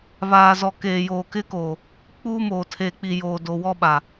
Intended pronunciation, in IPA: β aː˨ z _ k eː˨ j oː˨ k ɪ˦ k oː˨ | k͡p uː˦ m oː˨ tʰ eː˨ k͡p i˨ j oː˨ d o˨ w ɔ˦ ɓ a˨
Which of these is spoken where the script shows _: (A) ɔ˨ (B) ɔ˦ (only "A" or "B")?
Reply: A